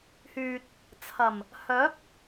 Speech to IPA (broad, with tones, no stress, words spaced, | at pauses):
hyː˨t̚ | t͡sʰɐ˨˩m | hœː˨˥p̚